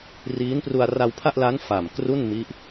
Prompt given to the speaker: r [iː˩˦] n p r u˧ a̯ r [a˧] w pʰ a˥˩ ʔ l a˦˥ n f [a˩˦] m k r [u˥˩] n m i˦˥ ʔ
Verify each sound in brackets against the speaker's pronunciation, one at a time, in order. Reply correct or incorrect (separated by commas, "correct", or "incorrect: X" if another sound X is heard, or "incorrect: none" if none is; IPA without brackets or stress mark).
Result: incorrect: iː˦˥, correct, incorrect: a˨˩, correct